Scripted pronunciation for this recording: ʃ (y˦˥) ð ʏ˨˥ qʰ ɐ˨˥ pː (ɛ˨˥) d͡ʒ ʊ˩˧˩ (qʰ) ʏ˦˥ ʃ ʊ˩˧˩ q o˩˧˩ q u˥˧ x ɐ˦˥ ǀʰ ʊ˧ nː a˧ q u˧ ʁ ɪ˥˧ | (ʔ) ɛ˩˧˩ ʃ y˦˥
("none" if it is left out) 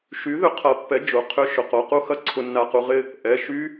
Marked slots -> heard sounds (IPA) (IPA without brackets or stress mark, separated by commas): y˨˥, ɛ˨˥, qʰ, ʔ